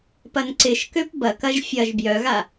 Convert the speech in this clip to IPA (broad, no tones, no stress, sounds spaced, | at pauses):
p ɐ n ǀ ɪ ʃ k ø p b ɐ k ɐ ʒ fʲ ɐ ʒ b j œ ɣ a